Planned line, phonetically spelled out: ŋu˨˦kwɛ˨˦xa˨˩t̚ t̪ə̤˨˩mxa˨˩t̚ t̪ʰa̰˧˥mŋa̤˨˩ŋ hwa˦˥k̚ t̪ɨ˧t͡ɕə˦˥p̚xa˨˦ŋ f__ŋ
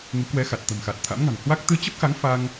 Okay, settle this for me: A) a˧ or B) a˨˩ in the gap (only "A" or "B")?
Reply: A